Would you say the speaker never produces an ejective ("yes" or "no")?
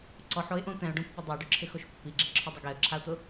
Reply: yes